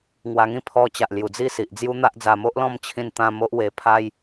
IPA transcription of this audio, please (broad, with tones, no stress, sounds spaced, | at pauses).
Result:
ŋ w a˧ ŋ ĩ˦ pʰ ɔ˧ t͡ɕ a˨ ʔ l j u˨˩ d͡z i˥˧ s i˨ ʔ d͡z j u˦ n̪ a˦ ʔ d͡z a˧ m o˦ ʔ l ɔ̃˥˧ m t͡ɕʰ ĩ˧ n t̪ ã˧ m o˦ ʔ w e˧ pʰ a˧ j